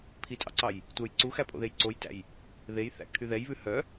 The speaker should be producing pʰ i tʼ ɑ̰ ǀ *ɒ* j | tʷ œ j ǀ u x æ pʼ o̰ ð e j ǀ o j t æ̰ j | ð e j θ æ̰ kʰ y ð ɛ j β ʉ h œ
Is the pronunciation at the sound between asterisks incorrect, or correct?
incorrect: ɑ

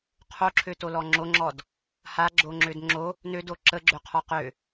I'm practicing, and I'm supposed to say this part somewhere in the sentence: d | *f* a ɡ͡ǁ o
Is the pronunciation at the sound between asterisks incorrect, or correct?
incorrect: h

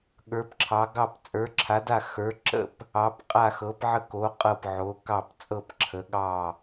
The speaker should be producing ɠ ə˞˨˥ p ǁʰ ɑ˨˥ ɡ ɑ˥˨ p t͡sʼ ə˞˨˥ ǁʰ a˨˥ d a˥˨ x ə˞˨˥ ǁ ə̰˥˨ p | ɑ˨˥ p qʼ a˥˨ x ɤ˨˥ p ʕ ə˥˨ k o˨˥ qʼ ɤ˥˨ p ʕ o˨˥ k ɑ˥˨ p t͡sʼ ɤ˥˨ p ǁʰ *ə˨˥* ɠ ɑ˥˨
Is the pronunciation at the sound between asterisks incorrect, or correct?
correct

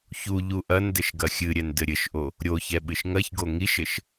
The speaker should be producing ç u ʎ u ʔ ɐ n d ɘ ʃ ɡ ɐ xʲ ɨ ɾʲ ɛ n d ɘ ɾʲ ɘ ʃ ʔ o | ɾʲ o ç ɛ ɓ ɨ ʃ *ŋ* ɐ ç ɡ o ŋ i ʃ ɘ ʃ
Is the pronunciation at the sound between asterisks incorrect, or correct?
correct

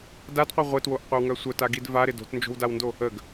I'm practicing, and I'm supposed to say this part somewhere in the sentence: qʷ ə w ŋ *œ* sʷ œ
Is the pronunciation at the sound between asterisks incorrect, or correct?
correct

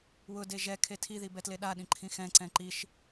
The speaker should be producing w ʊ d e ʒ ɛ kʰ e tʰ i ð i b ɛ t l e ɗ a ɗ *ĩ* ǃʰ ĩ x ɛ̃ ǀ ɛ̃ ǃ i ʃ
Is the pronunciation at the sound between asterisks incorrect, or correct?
correct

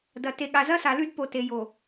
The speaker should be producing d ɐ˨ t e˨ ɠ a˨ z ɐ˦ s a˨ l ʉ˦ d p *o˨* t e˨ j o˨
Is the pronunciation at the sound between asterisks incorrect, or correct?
correct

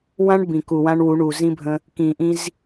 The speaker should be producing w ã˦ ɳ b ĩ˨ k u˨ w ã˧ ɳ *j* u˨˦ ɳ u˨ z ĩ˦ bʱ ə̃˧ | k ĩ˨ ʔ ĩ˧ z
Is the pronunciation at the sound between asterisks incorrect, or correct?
incorrect: w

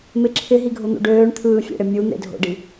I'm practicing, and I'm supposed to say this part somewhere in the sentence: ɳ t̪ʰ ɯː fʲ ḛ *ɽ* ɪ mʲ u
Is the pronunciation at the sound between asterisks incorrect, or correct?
correct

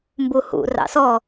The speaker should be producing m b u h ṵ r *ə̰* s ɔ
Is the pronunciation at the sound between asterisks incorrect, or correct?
incorrect: ɑ̰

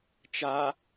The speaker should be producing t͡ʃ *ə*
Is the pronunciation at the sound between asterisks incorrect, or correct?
incorrect: a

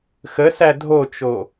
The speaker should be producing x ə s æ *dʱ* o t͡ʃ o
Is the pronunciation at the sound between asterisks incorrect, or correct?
correct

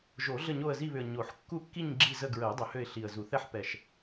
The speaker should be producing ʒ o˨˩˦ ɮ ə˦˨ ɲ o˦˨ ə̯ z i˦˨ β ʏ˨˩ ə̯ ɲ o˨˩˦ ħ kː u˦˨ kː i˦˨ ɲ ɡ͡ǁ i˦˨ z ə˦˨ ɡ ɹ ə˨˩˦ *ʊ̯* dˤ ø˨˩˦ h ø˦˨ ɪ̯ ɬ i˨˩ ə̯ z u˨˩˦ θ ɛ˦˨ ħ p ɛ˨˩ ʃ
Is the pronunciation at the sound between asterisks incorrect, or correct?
correct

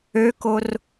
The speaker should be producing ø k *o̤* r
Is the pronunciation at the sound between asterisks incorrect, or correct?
incorrect: o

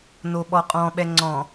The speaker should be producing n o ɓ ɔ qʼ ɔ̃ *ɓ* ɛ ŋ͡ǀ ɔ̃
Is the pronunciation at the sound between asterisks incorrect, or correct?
correct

